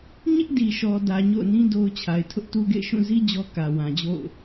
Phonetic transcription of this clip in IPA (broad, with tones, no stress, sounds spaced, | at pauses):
ɲ ɪ˦ ʔ d i˨ ʃ ɔ˨ d ä˨ ɲ o̰˦˨ ʊ̯ n ĩ˦ d o˦ ʊ̯ t͡ɕʰ a˨ ɪ̯ tʰ ʊ˦ ʔ t u˦ ɡ ḛ˦˨ ɪ̯ ʃ ũ˦˨ z i˦ d͡ʑ ɔ˦ k ä˨ w ã˨ d͡ʑ o̰˦˨ ʊ̯